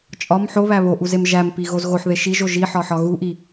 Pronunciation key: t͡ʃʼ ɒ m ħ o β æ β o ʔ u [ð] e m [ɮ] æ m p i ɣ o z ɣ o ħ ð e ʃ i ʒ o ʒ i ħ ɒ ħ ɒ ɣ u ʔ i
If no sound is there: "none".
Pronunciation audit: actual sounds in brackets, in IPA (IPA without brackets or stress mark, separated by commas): z, ʒ